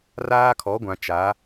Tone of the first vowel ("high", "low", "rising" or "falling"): high